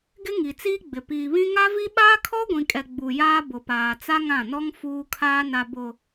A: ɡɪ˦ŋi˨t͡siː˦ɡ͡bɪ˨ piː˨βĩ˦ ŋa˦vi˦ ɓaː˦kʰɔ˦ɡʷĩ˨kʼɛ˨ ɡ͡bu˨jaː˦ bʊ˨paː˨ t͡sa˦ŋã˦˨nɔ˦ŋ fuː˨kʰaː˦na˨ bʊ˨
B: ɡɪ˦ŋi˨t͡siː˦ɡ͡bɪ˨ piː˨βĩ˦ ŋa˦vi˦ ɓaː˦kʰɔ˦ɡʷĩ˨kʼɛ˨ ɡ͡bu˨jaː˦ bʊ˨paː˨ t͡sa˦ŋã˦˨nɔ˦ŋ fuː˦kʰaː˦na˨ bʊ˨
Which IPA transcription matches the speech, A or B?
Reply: B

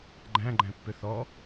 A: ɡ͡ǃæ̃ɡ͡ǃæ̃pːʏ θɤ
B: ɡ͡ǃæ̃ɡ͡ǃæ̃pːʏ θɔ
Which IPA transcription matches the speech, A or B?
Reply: B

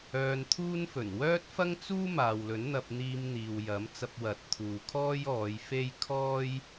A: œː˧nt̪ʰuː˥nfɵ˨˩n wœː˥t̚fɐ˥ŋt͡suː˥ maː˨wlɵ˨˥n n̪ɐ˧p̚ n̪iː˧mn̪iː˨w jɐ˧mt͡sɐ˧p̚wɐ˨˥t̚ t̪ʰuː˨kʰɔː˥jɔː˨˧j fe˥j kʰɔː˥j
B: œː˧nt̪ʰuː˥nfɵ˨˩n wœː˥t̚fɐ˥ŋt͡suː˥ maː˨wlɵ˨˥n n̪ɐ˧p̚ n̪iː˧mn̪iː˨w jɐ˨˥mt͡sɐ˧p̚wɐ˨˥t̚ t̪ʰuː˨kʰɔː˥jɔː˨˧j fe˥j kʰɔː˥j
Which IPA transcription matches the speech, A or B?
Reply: B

